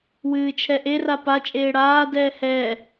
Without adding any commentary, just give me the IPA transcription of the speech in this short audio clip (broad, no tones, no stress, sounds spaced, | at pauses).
w ɨː t͡ʃʰ ɛ ʔ e r a p a t͡ʃʼ eː ɽ aː d ɛː h ɛː